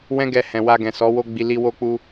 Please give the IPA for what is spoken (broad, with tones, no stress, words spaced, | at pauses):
wɛ̃˦ɡɛ˧hɛ̃˨ wa˧ɡɛ̃˨sɔ˨˦ wo˧ɡ͡bi˨ li˧wo˧k͡pu˧